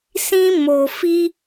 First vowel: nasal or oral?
nasal